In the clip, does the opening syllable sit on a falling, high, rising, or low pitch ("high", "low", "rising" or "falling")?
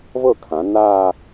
falling